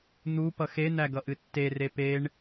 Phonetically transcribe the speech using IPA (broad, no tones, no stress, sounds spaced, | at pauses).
n̪ u p ʌ x e n̪ æ ɡ ʌ ʔ ɨ tː e r e p e ɳ